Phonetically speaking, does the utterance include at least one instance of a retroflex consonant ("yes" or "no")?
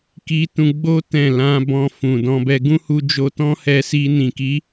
no